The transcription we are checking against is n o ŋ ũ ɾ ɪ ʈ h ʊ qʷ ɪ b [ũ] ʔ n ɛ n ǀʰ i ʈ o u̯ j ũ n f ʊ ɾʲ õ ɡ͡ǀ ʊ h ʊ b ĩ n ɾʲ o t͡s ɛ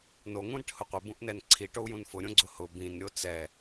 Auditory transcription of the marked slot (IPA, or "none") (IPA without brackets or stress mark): ũ